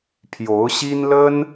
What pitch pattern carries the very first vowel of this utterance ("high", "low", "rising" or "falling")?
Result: rising